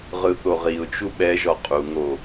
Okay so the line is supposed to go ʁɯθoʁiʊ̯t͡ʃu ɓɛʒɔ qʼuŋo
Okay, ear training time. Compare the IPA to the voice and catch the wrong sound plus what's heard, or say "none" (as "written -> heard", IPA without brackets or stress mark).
none